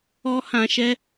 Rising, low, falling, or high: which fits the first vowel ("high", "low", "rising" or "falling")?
high